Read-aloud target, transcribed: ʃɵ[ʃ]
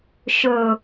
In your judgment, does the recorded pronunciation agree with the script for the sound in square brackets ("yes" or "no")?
no